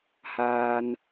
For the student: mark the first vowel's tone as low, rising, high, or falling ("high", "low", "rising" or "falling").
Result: low